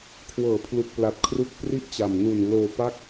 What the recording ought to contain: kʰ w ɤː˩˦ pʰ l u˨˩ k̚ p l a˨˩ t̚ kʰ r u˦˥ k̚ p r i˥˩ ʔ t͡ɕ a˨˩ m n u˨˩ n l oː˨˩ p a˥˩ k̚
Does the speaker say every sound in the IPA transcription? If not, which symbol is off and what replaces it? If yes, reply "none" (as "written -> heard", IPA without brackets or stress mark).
oː˨˩ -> oː˧